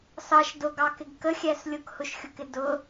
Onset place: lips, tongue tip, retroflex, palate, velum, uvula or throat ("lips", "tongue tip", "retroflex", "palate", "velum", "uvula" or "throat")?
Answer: tongue tip